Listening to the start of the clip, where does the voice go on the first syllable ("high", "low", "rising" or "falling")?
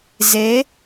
rising